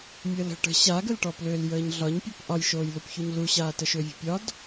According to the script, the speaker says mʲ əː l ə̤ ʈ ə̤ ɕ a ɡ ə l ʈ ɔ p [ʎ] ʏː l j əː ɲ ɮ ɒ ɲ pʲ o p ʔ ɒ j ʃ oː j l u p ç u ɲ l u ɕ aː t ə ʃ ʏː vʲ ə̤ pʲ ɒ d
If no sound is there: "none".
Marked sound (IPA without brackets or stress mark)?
l